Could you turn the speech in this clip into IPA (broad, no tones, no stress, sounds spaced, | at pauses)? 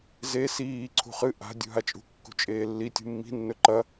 z e s iː ǀʰ ṳ χ ɨ ʔ a̤ dʲ ṳ ɦ a t͡ʃʼ ṳ kː ṳ t͡ʃʼ eː lː i tʲ ṳ mː i̤ nː ɵ ǃ ɐ